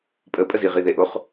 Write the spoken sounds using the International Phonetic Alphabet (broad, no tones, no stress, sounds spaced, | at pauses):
pʼ ə pʼ ə z i ʁ i ð e ʔ o χ